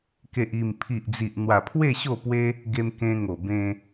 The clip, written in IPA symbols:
k e˨ ʔ i˨˩ m pʰ i˨ ʔ d͡z i˨ ʔ n̪ w a˨˩ pʰ w e˥˧ ɕ o˥˧ p w e˦ | ɡ e˧ m k ẽ˧ ŋ o˨˩ b ẽ˧

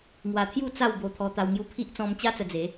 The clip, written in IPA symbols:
ŋ w a˧ t̪ʰ j u˥˧ t͡s a˥˧ w b o˧ t̪ʰ ɔ˧ t̪ a˧ w ŋ j u˧ pʰ i˦ ʔ t͡s ɔ̃˧ m t͡ɕ a˦ t͡s ə˧ d͡z e˨˦

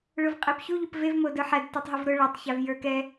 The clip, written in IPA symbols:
ɭ ʊ v qʼ ɛ p ç u ʎ ʊ p v e v m o d ə˞ ħ æ d t ə˞ tˤ ɦ ʊ v ɾ ʊ ɭ a tˤ ç a v j ə˞ k ɛ

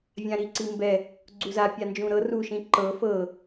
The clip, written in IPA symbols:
vʲ ã ɾ i ǀ i m b ɛ | ɡ͡ǀ u z a pʲ a n d͡ʒ ũ ɾ ɤ r u ʃ ĩ ǃ ɤ f ɤ

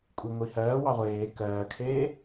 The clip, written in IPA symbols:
kʷʼ i ŋʷ iː h ɜː w ɑ ʁʷ eː k ɜː kʰ eː

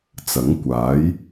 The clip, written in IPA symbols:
t͡s ɐ˨˥ ŋ kʷ aː˨˥ j

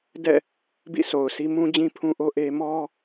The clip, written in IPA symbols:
d ɛ̰˦˨ | b ḭ˦˨ sʰ o˨ ʊ̯ sʰ i˦ m ũ˦ d͡ʑ ĩ˦ pʰ ũ˦ ʔ o˦ ʔ e˦ m ɔ˦

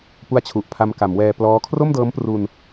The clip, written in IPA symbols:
p u˦˥ a̯ t͡ɕʰ u˨˩ ʔ pʰ a˧ m k a˩˦ m w ɛː˧ p l ɔː˦˥ kʰ r o˥˩ m d ɤː˦˥ m p r u˧ n

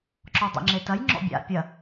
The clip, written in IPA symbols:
ǁ ɔ dˤ ḛ ŋ͡ǁ e t ɐ j ŋ͡ǁ ɔ̰ bʲ a̰ pʲ ɐ

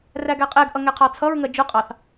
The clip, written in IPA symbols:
r æ ɡ æ qʼ ɛ ɡ ʔ ʌ ŋ ɛ qʰ ɑ t͡sʰ ʌ ɹ ŋ ɜ d͡ʒ ʊ qʼ ɑ θ

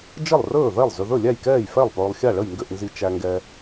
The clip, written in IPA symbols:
d͡ʒ ə˥˩ lˠ r ɵː˥˩ ð ɛ˥˩ lˠ z ʏ˨ ð ɵ˥˩ lʲ æ˥˩ j k ɛː˥˩ j f ɛ˥˩ lˠ p ɵː˨ lˠ xʲ a˥˩ ɭ ə˥˩ j ŋ ɡ ʏ˥˩ ʔ n z i˨ t͡ʃ æ˨ ŋ ɡ ɛ˨

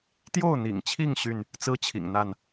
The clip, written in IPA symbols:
t̪ j o˥˨ ʊ̯ n̪ ḭ˨˩ ŋ t͡ɕʰ i˥˨ ŋ ɕ y˥˨ n | t͡s ɹ̩˦ t͡ɕʰ ḭ˨˩ ŋ n̪ a˥˨ n

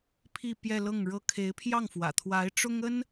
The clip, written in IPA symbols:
pʰ i˥˧ p j ɛ˥˧ l ɤ˥˩ ŋ ɻ ɤ˥ kʰ e˧˥ ɪ̯ pʰ j ɑ˥˩ ŋ f w ä̰˨˩ t̪ʰ w a˧˥ ɪ̯ ʈ͡ʂ ʊ˥ ŋ ə˥ n

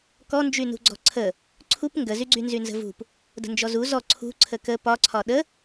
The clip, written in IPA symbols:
k ɔ n d͡ʒ y n ṳ ɡ͡ǀ ɔ̤ ǀʰ ə | ǀʰ u p ŋ ɡ ə z y ɡ͡ǀ y n z y n z ə̤ v ṳ p | d ə̤ n d͡ʒ ɔ z u z ɔ ǀʰ ṳ ǀʰ ə k ə p ɒ ǀʰ ɒ ɗ ə

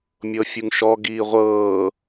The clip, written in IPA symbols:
mʲ ɤ fʲ u ŋ ʃ ɔ ɡ iː ʁʷ ɤː

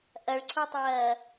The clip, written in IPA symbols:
ʔ ɐ ɭ ǀʰ u tˤ ɐː

